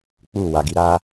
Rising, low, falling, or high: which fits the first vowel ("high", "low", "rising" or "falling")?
falling